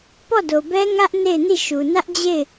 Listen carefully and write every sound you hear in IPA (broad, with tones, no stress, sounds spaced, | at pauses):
p ɔ˦˨ d o˨ b ɛ˦ ŋ ä˦ ʔ n e˦˨ ɪ̯ n i˦˨ ʃ u˨ n ä˦ ʔ d͡ʑ e˦˨ ɪ̯